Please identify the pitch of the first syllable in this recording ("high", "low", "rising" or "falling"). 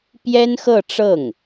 high